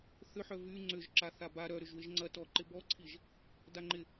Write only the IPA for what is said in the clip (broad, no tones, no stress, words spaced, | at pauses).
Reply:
θʏħœ vy ŋ͡ǀʏʒǁa θaba ɾœɾʏʒ wɪʒŋ͡ǀɐ tɔǃɪ bɔǀʰiʒ | daŋ͡ǃɪ